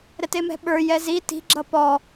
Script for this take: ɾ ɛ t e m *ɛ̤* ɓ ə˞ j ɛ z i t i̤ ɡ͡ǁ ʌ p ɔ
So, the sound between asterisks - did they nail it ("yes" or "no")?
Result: yes